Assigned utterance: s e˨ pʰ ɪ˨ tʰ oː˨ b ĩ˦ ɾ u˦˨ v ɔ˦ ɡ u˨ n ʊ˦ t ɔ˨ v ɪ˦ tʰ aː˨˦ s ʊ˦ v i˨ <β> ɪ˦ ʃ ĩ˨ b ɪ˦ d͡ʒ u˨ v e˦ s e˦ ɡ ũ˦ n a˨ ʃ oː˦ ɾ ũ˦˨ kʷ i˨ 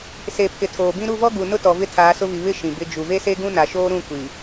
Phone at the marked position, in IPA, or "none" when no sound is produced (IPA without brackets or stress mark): β